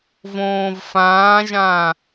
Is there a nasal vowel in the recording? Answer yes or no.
yes